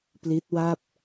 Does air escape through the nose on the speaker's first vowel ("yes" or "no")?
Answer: no